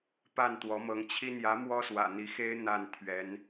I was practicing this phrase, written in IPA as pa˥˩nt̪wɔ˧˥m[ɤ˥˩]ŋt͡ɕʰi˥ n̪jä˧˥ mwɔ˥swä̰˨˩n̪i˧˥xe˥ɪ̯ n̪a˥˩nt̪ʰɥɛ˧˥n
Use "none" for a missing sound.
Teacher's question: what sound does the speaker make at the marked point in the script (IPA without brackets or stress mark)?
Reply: ɤ˧˥